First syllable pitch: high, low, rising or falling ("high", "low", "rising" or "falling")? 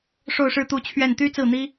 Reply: falling